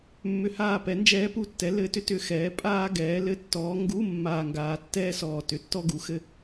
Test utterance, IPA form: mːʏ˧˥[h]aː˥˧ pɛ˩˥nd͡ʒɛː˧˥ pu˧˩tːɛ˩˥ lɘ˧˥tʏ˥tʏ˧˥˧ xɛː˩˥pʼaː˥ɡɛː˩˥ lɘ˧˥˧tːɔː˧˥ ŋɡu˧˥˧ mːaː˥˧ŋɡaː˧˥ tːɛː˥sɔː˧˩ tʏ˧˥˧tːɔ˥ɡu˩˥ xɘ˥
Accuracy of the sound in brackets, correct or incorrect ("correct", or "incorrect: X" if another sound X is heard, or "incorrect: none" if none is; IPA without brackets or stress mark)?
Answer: correct